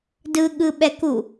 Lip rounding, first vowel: unrounded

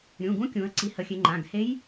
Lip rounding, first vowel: rounded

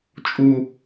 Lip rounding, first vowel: rounded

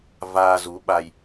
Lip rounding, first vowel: unrounded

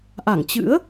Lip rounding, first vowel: unrounded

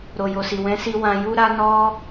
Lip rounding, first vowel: rounded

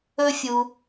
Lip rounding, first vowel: rounded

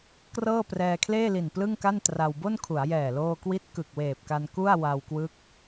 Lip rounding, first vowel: unrounded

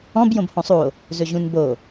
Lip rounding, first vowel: rounded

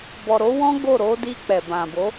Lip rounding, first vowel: rounded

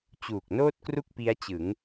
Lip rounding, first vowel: rounded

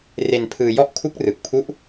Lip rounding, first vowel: unrounded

